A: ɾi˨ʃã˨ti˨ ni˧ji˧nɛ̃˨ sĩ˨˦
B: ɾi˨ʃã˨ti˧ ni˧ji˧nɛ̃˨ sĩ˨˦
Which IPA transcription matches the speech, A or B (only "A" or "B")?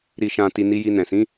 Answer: A